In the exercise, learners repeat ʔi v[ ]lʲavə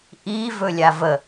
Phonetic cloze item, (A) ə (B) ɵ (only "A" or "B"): B